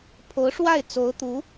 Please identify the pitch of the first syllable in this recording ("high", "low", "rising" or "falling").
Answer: rising